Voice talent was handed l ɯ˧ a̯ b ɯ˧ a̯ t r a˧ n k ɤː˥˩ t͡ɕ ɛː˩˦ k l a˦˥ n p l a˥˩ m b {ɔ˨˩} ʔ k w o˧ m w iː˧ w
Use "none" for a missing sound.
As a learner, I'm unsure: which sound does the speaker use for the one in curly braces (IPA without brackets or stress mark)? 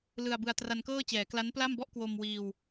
ɔ˥˩